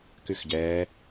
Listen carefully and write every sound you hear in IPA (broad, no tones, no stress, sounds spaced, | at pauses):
k ʉ x ɟ ɛː